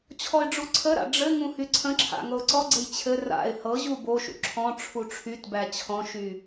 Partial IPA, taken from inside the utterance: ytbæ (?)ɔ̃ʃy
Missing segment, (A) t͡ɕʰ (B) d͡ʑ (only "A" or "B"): A